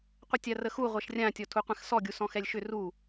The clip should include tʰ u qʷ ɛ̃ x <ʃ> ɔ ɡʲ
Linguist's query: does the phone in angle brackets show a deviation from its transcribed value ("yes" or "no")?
yes